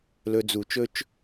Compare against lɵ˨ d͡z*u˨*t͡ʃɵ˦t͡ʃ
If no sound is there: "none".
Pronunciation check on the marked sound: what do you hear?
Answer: u˨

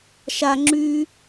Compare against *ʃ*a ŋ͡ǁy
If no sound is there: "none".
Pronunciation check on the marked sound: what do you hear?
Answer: ʃ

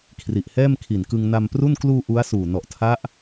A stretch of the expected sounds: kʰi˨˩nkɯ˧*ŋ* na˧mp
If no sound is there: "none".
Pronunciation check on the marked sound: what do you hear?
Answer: ŋ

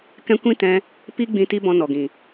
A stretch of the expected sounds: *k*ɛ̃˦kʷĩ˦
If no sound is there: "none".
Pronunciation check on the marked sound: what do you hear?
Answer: k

